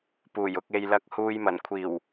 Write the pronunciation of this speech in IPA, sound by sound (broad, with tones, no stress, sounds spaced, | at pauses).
p uː˨˩ j ʊ˨ k̚ e˨ j l ɐ˨˥ k̚ h uː˨ j m ɐ˨˩ n kʷʰ iː˨˩ w